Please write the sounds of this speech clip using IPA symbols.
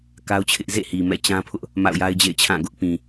k a˦ ʊ̯ t͡ɕʰ ɪ˦ ʔ z ḛ˦˨ h i˨ m ɛ̰˦˨ t͡ɕ ã˦ pʰ ʊ˦ ʔ | m a̰˦˨ ʊ̯ j a˦ ɪ̯ d͡ʑ ḛ˦˨ ɪ̯ t͡ɕʰ ã˦˨ ɡ ʊ˦ ʔ p ĩ˨

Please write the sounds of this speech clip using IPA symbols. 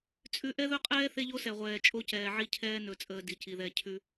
t͡sʼ ʉ˦ ʔ ɛ˦ ð ɵ˦ qʼ ɛː˦ θ e˦ ʎ o˦ s ɛ˨ ʁʷ ɛː˨ t͡ʃʼ o˦ c ɛː˨ ʕ i˦ cʰ ɛː˦ n ɵ˨ t͡sʼ əː˨ d i˨ c i˨ ð ɛ˦˨ cʰ ʉ˦

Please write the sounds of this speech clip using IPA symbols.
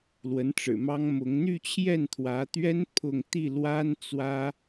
l w ə˧˥ n ʈ͡ʂ ɻ̩˨˩ m ɑ˥ ŋ m ʊ˧˥ ŋ n̪ y˥˧ t͡ɕʰ j ɛ˥˩ n t̪ʰ w ä˧˥ t̪ ɥ ɛ˥ n pʰ ʊ˥˧ ŋ t̪ i˥˩ l w a˥ n t͡s w ä˥

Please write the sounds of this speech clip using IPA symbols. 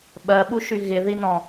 ɓ ɜ ɓ u ʃ y ɣ ɪ ð i n ɔ̃

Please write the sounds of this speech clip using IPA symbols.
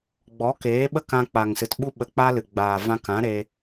ɡ͡b ɔ˨˦ k eː˨˦ ɓ ə˦ k ã˧ k͡p a˨ ŋ s ɨ˨ t ɓ u˦ ɓ ə˧ k͡p a˦ l ɨ˨ ɡ͡b aː˨ v ã˧ k ã˨˦ ɾ e˧

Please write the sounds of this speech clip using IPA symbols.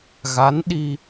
ɣ a˧˥ n ɗ i˧

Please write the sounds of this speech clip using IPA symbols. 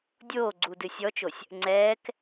dʲ oː ɡ͡ǀ uː d ɨ sʲ ɔ t͡ʃ o sʲ | ŋ͡ǀ ɛː k

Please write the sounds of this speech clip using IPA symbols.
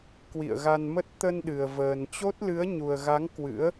k w ḭ˧˨ ə̯ ɣ a˧ n m ə˦˥ t̚ t̪ ə˧ n ɗ ɨ˨˩ ə̯ v əː˨˩ n t͡ɕ o˦˥ t̚ l ɨ˨˦ ə̯ ɲ u˨˩ ə̯ ɣ a˨˦ ŋ k w ɨ̰˧˥ ə̯

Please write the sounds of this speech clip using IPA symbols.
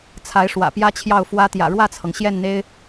t͡sʰ a˧˥ ɪ̯ ʂ w ä̰˨˩ p j ä˥ t͡ɕʰ j ɑ˥˩ ʊ̯ f w ä˧˥ t̪ j ä̰˨˩ ɻ w ä˥˩ t͡sʰ ɤ˩ ŋ ɕ j ɛ˥˩ n n̪ e˥ ɪ̯

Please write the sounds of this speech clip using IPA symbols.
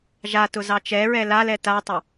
ʒ a t ʊ z ɑ t͡ʃ ɛ ɹ ɛ l a l ɛ t a tˤ ʊ

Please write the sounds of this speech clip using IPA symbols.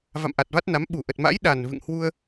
v a̰˧˨ m ʔ a˨˩ t̚ v a˦˥ t̚ n a˨˦ m ɓ u˧˩ ʔ ə˨˩ t̚ m a̰˧˥ j ɗ a˨˩ n v ɨ̰˧˨ ŋ h w u˧ ə̯

